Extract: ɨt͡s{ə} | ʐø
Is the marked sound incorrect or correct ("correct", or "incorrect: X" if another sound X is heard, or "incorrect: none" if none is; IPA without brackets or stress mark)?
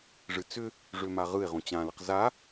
incorrect: ʏ